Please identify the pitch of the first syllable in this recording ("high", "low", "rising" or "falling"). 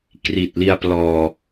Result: low